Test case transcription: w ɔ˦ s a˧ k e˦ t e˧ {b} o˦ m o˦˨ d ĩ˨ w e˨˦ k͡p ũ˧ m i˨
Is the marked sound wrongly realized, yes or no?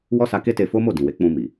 yes